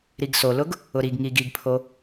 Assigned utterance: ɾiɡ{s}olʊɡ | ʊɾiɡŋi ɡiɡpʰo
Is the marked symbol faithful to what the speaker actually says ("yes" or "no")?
yes